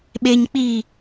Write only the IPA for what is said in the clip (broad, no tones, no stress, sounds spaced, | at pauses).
ɓ e ɲ k͡p i